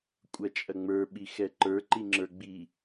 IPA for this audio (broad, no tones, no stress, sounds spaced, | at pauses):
kʷʼ ɐ t͡ʃʼ ɐ ŋ͡m ə˞ ɓ i x ɛ ǃ ə˞ ǃ i ŋ͡ǁ ə˞ ɡ͡b i